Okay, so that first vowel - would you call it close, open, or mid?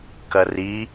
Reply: open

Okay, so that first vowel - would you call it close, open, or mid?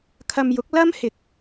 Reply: open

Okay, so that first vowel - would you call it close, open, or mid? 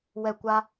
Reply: mid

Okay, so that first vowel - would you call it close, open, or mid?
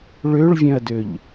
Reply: mid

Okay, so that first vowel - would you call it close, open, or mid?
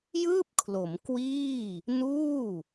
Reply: close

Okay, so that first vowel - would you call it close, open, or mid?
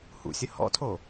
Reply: close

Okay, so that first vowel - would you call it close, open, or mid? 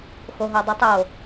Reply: mid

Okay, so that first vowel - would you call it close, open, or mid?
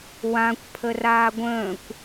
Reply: open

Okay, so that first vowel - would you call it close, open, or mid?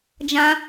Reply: open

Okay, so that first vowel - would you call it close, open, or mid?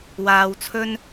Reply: open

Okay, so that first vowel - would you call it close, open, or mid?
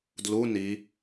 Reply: close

